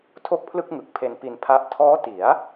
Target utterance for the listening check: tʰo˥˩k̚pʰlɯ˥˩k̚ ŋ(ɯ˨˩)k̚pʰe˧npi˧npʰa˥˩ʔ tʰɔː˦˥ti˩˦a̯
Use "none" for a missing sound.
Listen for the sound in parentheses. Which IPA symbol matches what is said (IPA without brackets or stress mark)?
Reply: ɯ˨˩